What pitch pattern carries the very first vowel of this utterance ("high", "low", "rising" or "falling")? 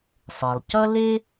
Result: low